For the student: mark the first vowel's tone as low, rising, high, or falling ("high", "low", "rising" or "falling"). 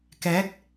rising